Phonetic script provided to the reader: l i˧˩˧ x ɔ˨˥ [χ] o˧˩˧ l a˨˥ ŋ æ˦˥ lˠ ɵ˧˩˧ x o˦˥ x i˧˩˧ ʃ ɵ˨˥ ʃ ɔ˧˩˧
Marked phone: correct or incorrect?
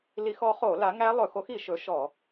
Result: correct